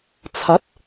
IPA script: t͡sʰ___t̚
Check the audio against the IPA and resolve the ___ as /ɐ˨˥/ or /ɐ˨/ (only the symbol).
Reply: ɐ˨˥